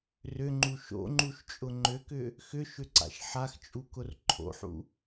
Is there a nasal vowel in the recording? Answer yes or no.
no